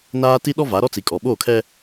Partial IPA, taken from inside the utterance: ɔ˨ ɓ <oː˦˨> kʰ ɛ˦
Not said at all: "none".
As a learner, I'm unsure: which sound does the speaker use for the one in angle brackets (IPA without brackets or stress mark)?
oː˦˨